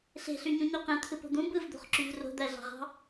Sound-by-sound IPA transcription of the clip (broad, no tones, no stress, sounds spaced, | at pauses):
ɬ e̤ ɬ y ɲ ũ ɲ o q ẽ t̪ʰ ɯ p o̤ d̪ ũ b ɯ v d̪ o̤ χ ǁ y v r o̤ d̪ æ ɮ ɑ̤ ʁ ɑ̤